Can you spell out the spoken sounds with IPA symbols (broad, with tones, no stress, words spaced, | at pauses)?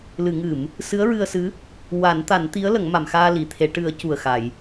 lɨ˨˩˨ŋɨ˨˩˨m | sɨ˧˥ə̯ɹɨ˧ə̯sɨ˧˥ | wa˨˩˦nt̪a˨˩˦nt̪i˧˥ə̯ lə˨˩˦ŋma˨˩˨mxaː˧ li˨˩˨t̪ʰe˨˩˦ ʈɨ˨˩˦ə̯ cu˨˩ə̯xa˨˩˨j